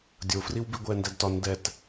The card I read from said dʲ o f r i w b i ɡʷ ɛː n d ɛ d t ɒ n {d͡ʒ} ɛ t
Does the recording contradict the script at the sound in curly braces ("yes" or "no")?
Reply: yes